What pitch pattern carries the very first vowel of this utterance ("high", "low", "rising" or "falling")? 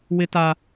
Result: high